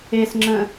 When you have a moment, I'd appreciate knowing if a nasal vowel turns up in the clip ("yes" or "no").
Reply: yes